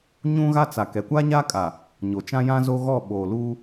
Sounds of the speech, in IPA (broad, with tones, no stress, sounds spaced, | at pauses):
ɲ ũ˦ ɣ a˦ t͡s a˨ k ɛ˨ kʷ a˦ ɲ a˦ kʼ a˨ | ɲ o˨ t͡ʃ ã˦ j ã˦ z o˦ ɣ ɔ˦˨ ɓ oː˨ l uː˦